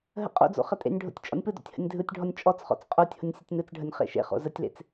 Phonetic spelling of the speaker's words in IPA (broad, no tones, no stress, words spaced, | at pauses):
ɦə̰qʼo̰d͡zo̰ χətʼḛnʲɖʱo̰tʲ t͡ʃʼɔ̰nʲpɯdo̰tʲ hə̰nʲdʱɯtʲɖʱɔnʲ t͡ʃʼɔt͡sχɔ̰t͡s qʼotʲhʊnʲ sʲətʲnɯt͡sɖʱənʲ χḛʃḛχo̰ zətʲlḛt͡s